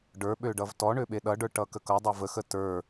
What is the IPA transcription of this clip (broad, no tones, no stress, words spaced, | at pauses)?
ɖə˞ɓø ɖʌvtɔɳø ɓeɗʌɖə˞ ʈʌkəkʌdˤə˞ vəxə tə˞